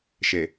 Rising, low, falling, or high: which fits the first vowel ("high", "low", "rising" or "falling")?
low